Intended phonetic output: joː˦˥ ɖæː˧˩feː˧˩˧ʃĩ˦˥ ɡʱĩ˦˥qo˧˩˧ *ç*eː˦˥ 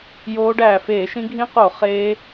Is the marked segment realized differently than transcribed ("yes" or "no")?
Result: yes